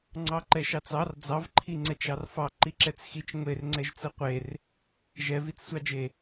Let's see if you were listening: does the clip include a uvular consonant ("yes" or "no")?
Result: yes